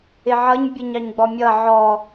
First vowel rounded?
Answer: no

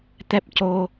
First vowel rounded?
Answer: no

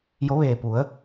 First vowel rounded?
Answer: yes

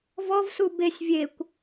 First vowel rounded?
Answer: yes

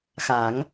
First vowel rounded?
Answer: no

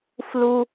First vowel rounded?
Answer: yes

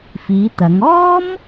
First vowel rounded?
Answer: no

